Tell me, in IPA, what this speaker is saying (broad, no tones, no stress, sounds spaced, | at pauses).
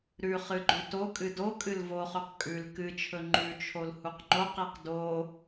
ɾ ʉ χ ɨ ɡ͡ǃ ʉ t o kʼ ɨ d o kʼ ɨ l v o χ ʉ q kʼ ʉ l k ɨ t͡ʃʰ ɵ ŋ͡ǃ ʉ t͡ʃʰ o l h u q ŋ͡ǃ o q i q d o